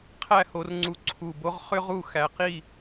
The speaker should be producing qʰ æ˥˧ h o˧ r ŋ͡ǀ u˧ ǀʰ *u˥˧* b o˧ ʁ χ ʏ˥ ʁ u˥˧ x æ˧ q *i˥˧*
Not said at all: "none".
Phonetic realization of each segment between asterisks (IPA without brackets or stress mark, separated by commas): u˧˩, i˥˧